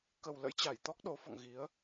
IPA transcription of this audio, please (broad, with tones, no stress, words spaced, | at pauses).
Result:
kə˨˩wlə̰˧˥j t͡ɕa˧˩jt̪ɔ˦˥k̚ɗo˨˦fɔ̰˧˨ŋ ɣi˨˦ə̯